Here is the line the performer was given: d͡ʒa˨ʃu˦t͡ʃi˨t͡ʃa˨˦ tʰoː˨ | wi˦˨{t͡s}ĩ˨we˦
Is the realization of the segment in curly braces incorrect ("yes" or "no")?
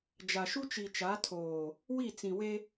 no